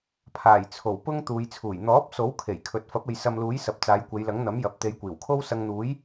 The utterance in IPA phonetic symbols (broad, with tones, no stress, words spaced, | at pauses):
pʰaː˨˩jt͡sʰo˨˩w pʊ˥ŋ t̪uː˨˧jt͡sʰuː˨˩j n̪ɔː˨˥p̚ so˨˥wkʰe˨˩j kʰɵ˨t̚ fɐ˨˥p̚e˨j sɐ˧mluː˨˥j sɐ˨p̚ t͡saː˨˧jkʷe˨˧jlɐ˨˥ŋ n̪ɐ˨˥mjɐ˨p̚ t̪e˨˧jkʷiː˨˩wkʰo˥w sɐ˧ŋn̪uː˨˥j